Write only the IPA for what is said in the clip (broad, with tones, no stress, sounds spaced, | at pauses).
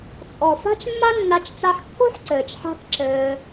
t͡sʼ ɔ˨ f a̤˦ t͡ʃ mː a˦ nː a˧ t͡ʃ t͡s a˧ ħ kː o̤˦ ħ ǀ ɘː˨ t͡ʃ ħ a̤˦ k ǁ ɘː˧